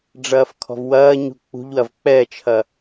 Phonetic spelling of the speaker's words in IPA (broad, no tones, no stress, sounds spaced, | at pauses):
ɖ͡ʐ ɐː f kʰ ɔ̤ v w ɐː ɲ ṳ k͡p ṳ ʎ w ɐ v k͡p ɛ t͡ʃʰ ɐ